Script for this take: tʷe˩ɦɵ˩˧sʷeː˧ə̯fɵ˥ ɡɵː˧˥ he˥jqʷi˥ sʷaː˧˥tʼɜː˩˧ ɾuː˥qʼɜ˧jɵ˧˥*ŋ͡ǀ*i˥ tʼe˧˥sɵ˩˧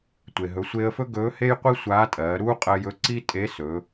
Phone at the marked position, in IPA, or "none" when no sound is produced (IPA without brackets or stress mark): ǀ